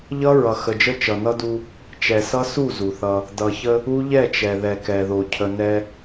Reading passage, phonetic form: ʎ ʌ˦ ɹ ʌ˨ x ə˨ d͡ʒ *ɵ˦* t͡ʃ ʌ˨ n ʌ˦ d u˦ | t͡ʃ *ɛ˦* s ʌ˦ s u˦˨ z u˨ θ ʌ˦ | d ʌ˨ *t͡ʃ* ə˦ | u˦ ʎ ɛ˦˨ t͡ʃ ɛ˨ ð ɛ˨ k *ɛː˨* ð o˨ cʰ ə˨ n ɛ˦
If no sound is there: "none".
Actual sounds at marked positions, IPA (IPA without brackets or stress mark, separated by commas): ə˦, ɛ˨, ç, ɛ˨